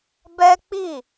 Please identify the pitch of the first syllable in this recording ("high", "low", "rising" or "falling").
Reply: high